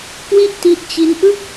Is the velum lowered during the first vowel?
no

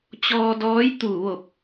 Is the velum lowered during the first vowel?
no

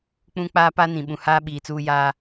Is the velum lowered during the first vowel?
yes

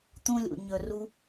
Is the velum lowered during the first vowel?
yes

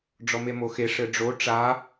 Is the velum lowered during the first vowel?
no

